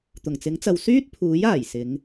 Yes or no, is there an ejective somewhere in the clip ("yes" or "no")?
no